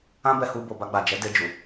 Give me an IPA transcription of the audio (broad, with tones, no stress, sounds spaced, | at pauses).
ã˦ b ɛ˧ h u˧ b o˨ b a˧ ɡ͡b a˨ d͡ʒ ɛ˨˦ d e˧ d͡ʒ u˨